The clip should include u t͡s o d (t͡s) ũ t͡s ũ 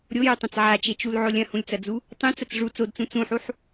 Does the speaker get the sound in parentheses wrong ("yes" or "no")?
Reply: no